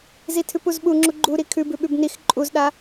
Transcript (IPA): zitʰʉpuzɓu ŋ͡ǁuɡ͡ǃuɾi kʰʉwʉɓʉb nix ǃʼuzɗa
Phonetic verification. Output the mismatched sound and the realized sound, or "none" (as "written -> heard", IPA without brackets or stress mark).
w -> b